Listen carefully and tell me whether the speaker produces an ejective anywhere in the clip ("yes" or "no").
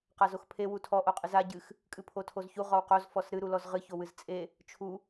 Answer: yes